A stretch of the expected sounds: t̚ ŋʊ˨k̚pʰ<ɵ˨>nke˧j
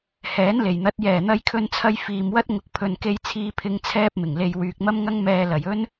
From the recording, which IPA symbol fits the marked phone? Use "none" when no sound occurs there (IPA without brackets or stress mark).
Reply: ɵ˨